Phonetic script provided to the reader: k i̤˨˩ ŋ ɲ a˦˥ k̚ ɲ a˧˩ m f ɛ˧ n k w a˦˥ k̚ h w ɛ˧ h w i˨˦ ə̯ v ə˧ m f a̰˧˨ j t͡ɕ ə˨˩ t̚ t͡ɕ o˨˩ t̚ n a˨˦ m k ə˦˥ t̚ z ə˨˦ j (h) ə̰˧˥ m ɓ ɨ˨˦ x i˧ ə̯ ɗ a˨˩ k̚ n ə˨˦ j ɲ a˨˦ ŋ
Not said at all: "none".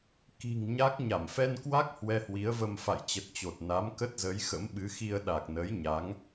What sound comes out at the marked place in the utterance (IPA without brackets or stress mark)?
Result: x